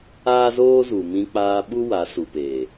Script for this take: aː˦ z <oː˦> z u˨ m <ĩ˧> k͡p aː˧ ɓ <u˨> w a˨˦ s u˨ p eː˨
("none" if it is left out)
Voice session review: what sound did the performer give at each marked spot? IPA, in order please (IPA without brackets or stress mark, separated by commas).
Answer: oː˦, ĩ˧, u˦